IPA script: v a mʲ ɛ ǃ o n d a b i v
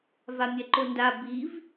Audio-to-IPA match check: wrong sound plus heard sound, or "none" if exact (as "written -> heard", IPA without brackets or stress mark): none